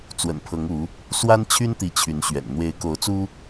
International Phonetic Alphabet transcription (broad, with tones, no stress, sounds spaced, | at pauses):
t͡s w ə̰˨˩ n pʰ ɤ˨˦ ŋ u˨˦ | s w a˦ n t͡ɕʰ y˦ n t̪ i˨˦ t͡ɕʰ y˨˦ n ɕ ɥ ɛ̰˨˩ n n̪ w e˨˦ ɪ̯ k o˨˦ ʊ̯ t͡s u˦